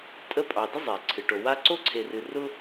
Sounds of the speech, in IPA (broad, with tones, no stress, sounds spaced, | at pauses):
tʼ ə˦ pʼ ɑ˨ d ə˥ zˤ e˩ ǀʰ ɨ˩ ʈ o˨ w a˦ ǀ o˥ ǀʰ e˨ r ɨ˨ r ʊ˥